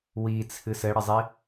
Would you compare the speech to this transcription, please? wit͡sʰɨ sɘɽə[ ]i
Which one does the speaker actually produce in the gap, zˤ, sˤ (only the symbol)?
zˤ